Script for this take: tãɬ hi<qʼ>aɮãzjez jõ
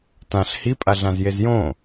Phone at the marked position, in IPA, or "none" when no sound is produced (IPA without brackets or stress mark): pʼ